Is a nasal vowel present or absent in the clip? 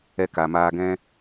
present